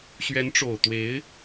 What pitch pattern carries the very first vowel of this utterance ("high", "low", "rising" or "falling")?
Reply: rising